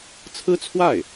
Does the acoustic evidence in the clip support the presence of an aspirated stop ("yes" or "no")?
yes